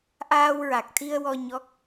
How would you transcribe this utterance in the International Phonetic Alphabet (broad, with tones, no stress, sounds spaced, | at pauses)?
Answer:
ʔ aː˧ w ɹ a˨˩ k̚ t̪ʰ i˧ ə̯ w ɔ˧ ɲ ɔ˦˥ k̚